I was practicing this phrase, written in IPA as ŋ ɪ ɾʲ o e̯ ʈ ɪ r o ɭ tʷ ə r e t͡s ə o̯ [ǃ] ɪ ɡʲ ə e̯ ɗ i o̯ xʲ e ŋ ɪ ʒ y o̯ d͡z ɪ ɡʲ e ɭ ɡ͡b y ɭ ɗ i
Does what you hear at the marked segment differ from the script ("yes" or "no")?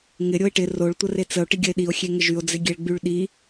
yes